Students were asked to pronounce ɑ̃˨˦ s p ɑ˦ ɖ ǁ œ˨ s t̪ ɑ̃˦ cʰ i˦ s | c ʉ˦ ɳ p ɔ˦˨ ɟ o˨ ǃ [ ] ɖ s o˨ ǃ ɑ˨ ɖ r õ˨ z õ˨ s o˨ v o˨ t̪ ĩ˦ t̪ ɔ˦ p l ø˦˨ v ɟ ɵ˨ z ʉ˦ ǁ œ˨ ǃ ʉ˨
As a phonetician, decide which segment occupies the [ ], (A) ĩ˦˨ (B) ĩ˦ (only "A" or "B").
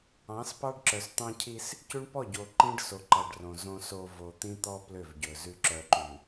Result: B